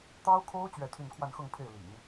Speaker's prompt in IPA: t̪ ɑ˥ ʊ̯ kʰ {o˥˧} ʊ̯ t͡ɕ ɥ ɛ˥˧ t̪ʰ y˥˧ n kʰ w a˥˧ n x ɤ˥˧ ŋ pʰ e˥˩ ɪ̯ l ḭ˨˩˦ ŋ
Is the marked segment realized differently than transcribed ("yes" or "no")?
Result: yes